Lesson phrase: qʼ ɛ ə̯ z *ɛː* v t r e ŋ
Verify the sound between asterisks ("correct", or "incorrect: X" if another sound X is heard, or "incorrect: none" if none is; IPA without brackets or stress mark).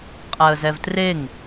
incorrect: ɛ